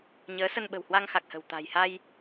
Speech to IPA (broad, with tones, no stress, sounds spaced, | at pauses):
ɲ əː˨˦ s ə˧ n ɓ ə̤˨˩ w h w a˧ ŋ x a˨˩ k̚ h ə̤˨˩ w t̪ a̤˨˩ j h a˧ j